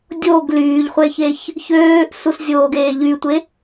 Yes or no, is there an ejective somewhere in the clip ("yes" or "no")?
no